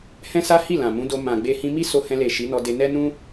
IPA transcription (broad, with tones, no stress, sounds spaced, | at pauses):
h ɛ̃˦ s a˦ h i˦˨ l ã˨ m ũ˨˦ d o˧ m ã˨ ɡ͡b e˧ h ĩ˧ m i˦ s o˧ h ɛ̃˧ l e˨ ʃ i˨˦ n ɔ˧ d e˧ n ɛ˦ n ũ˦